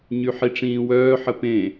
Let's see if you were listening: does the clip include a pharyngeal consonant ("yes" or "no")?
yes